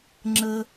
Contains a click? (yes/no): yes